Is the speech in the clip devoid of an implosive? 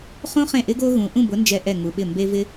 no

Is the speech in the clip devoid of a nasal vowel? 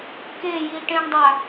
no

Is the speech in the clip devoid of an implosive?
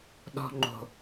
no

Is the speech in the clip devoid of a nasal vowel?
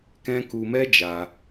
no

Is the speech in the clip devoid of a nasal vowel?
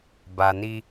yes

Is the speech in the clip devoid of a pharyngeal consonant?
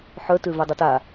no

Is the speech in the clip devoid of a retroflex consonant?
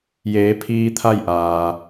yes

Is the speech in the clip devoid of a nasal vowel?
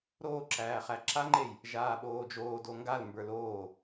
yes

